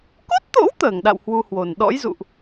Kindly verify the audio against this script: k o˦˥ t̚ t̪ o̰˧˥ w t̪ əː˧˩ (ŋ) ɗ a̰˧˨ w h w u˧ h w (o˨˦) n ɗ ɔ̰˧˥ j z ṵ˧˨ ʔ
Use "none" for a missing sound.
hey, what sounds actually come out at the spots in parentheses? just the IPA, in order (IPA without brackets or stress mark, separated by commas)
ŋ, o˨˩